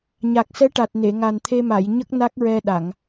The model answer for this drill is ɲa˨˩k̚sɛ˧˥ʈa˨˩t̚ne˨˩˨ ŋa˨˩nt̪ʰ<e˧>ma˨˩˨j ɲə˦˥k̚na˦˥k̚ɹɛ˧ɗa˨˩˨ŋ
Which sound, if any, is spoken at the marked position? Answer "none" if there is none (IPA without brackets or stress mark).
e˧